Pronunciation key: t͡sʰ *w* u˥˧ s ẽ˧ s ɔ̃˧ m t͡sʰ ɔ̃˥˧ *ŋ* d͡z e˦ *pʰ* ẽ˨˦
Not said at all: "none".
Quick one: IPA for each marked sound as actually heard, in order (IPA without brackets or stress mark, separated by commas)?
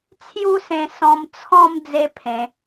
j, m, pʰ